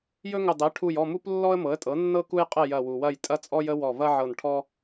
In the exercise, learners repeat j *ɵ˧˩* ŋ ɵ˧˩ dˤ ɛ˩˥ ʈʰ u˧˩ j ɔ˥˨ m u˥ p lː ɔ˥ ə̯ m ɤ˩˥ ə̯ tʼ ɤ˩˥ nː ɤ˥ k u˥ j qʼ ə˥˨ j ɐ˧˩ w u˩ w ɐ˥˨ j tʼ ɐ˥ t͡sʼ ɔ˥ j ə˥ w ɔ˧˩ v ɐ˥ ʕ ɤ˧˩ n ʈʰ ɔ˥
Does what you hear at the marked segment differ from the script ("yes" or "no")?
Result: yes